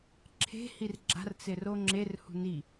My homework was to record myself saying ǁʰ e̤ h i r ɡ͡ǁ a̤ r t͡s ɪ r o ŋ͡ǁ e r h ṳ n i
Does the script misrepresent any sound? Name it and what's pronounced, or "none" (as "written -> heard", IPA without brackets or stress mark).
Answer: none